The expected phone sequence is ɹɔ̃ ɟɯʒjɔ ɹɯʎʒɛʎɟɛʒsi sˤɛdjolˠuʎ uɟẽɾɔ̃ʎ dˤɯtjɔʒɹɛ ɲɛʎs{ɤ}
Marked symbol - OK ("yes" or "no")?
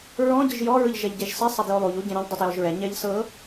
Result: yes